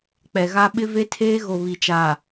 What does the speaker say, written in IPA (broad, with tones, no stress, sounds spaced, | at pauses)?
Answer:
k͡p ɛ˨ ɣ a˦ ɓ ɪ˦ v e˦ tʰ eː˦ ɣ o˨ β i˨ t͡ʃ a˨